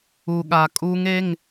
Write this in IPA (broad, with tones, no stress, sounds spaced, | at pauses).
u˨ ɠ a˨ kʼ u˦˥ ŋ e˧˥˧ ŋ